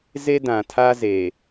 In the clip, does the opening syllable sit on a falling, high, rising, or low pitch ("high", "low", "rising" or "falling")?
high